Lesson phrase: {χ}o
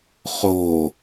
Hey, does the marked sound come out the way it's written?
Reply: yes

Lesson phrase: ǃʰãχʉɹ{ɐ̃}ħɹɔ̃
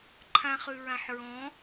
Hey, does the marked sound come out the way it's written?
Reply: no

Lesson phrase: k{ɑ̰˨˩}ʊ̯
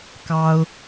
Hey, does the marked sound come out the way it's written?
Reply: no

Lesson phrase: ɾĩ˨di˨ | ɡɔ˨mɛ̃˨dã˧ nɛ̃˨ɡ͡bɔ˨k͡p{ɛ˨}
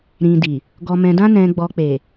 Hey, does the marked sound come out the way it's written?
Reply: no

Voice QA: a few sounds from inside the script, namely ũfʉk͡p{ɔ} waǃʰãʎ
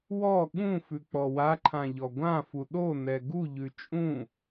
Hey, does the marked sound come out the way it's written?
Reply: yes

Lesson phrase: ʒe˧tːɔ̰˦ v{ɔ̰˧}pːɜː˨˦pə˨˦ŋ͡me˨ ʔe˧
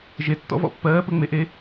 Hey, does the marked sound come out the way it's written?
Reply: yes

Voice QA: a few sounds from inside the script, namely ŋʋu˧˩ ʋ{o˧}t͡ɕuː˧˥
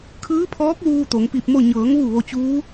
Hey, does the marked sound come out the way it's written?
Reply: yes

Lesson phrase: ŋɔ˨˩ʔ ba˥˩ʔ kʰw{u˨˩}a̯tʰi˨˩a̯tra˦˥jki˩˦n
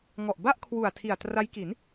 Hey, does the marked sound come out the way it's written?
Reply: yes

